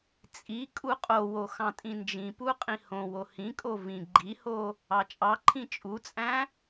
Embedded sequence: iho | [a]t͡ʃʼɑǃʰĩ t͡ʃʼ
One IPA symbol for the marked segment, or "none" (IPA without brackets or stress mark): ɑ